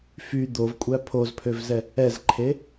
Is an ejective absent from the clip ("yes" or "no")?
no